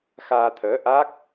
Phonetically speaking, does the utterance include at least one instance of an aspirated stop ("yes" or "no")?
yes